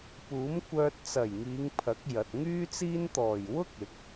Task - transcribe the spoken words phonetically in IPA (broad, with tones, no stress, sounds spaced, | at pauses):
p uː˨˥ m kʷ œː˧ t̚ t͡s ɐ˨˩ j ŋ iː˨˧ ŋ pʰ ɐ˨˥ k̚ j ɐ˨ t̚ ŋ yː˥ t͡s iː˥ n t̪ ɔː˨˩ j w ʊ˥ k̚ ɪ˨˥ k̚